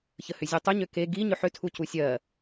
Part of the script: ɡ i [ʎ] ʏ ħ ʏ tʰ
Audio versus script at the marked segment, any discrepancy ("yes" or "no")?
yes